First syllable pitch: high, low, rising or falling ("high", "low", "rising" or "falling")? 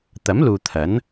rising